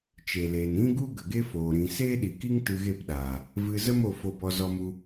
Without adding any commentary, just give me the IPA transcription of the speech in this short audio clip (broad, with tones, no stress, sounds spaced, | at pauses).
t͡ʃ e˨ l eː˨ n ĩ˦ ɡ u˦ ɡ ə˨ ɡ e˦ f oː˨ ɾ ĩ˨ s eː˦ ɗ i˨ k i˦ ŋ t ɨ˧ ɣ e˦˨ p ɗ aː˨ | v ɨ˧ z ə˦ m o˧ f o˧ b ɔ˧ z ɔ˧ m u˧